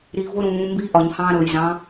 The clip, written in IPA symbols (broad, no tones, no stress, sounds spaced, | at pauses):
ɾ i v o ɾ ũː m b iː ʔ ɒ ɲ h ɑ̃ː ɾ ɤ j z ɑ̃